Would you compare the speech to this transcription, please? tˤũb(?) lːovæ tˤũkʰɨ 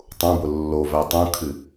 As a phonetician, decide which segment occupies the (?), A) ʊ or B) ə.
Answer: A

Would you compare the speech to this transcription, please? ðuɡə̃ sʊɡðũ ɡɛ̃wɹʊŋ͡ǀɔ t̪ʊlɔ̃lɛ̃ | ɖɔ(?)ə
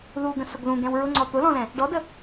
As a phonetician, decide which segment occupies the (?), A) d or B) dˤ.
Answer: A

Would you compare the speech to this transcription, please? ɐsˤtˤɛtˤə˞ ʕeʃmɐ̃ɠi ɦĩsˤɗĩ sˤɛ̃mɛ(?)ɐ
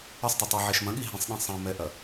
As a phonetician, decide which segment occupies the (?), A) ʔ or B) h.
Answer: A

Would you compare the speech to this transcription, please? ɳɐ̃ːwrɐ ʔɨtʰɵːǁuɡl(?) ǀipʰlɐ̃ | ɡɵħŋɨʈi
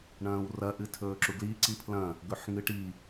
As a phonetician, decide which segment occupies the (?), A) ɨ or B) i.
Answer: B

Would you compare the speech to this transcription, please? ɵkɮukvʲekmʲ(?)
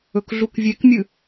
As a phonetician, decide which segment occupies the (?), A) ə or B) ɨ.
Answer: B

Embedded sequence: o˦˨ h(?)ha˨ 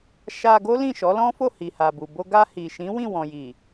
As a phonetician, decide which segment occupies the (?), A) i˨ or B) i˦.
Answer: A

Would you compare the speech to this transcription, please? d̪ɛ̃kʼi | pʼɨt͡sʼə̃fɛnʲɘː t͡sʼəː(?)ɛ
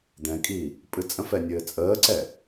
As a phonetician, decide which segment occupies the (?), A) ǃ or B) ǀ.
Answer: B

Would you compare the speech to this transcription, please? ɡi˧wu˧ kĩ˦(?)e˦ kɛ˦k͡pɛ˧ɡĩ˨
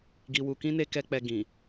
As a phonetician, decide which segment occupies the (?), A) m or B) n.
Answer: B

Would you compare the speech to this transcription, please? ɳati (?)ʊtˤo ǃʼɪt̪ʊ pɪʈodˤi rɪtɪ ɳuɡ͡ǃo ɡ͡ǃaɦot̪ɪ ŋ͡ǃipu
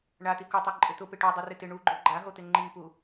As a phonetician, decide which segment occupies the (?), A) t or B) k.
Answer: B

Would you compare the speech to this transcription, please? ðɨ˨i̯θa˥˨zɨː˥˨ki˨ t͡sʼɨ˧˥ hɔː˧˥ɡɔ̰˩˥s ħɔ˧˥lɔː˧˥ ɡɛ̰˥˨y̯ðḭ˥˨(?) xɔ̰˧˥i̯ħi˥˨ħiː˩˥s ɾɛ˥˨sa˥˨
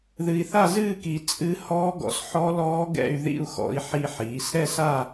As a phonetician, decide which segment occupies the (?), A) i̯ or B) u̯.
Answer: B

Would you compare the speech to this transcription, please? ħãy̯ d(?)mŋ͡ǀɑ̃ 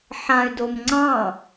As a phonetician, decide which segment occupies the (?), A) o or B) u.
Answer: A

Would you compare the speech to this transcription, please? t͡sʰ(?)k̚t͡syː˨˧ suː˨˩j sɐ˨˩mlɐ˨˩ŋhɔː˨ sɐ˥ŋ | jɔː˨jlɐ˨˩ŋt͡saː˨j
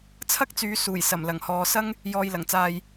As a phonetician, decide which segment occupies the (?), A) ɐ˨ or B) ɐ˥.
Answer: B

